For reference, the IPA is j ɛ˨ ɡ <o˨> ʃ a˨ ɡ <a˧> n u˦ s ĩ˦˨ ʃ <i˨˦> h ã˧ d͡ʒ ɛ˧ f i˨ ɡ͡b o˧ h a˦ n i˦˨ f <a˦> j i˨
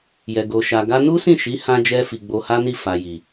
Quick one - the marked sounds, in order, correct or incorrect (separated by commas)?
correct, correct, correct, incorrect